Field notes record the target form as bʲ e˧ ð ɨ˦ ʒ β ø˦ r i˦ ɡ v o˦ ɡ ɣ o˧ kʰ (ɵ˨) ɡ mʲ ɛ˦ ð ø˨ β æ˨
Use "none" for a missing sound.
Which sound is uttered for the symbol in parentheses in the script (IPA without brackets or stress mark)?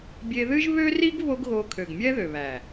ø˨